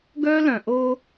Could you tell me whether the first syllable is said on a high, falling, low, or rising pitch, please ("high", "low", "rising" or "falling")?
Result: high